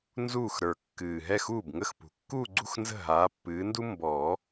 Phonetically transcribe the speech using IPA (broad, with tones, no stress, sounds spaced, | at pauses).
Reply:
n z uː˥˩ x ɾ ə˞˨˩ kː ɨː˨˩ ɦ ɛ˥˩ x uː˥˩ b ŋ ə˥˩ x p ṳ˨˩ kː uː˥˧ ɡ͡ǀ ṳ˥˧ x n z ə̤˥˩ ɦ aː˨˥ pː ɨː˨˥ n d u˥ m b ɔː˨˩˦